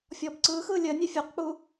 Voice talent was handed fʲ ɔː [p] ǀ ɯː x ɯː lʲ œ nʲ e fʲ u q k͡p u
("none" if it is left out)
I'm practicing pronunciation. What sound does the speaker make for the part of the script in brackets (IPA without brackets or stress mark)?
p